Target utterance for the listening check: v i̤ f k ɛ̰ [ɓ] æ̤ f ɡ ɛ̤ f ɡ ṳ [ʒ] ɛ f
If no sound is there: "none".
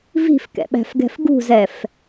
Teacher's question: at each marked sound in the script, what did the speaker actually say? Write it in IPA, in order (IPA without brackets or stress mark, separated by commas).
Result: ɓ, z